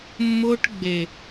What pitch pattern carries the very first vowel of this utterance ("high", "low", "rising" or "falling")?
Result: high